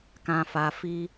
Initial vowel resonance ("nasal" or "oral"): nasal